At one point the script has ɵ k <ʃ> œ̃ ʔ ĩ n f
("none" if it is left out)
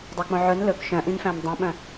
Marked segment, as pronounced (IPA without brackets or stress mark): ʃ